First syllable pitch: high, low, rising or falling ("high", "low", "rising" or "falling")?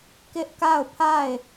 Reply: high